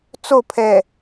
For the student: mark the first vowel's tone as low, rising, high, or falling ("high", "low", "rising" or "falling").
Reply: falling